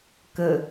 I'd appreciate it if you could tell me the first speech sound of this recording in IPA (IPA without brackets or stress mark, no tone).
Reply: k